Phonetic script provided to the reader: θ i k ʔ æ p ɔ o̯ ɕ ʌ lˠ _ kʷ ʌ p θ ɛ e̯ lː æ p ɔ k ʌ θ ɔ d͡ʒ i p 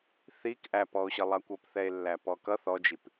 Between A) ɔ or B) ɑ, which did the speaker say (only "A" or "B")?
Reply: B